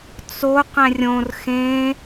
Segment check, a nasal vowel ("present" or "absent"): present